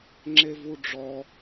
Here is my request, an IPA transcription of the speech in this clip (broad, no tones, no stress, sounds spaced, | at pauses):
ŋ͡ǁ e v u ɖ͡ʐ ɔ